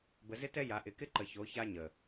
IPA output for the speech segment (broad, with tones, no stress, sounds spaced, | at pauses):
b ə˨ z ɪ˦ t ɛ˦ j a˨ ʔ ɪ˨ k ɪ˦ ǃ ə˨ ç o˨˦ ç a˦ ɲ ə˨